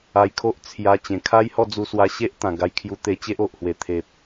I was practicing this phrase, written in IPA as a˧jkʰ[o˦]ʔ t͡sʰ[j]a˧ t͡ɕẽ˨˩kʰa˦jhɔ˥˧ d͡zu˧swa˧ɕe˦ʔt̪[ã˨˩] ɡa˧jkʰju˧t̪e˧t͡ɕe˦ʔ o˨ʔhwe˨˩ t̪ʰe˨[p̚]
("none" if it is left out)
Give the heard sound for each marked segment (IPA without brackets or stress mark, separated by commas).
o˦, j, ã˨˩, p̚